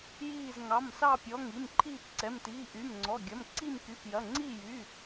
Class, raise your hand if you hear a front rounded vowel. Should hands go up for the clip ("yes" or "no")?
yes